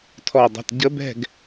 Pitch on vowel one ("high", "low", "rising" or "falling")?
falling